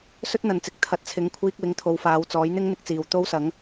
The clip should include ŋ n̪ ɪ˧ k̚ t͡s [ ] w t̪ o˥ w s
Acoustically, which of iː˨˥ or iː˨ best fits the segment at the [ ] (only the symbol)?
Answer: iː˨